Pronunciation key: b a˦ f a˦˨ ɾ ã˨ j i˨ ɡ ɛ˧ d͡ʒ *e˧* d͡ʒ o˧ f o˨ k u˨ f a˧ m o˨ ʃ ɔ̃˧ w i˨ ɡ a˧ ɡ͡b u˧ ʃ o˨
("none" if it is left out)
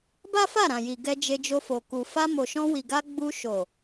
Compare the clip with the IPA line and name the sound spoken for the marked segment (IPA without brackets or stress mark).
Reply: e˧